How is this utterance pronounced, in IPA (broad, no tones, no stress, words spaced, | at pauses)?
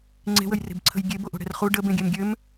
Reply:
ŋ͡ǀe̤wəjre̤bǀʰə̤j ɡʲeboʔo̤ɽɛ̤r χu ɖəbẽɡʲɛm ɡʲøm